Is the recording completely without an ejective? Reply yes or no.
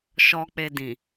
yes